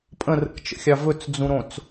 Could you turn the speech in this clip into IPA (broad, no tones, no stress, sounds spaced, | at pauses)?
pʼ ə̃ r ə̰ k t͡ʃ ə̰ xʲ ɑ v ɵ t͡s d͡z ũ ɾ õ t͡s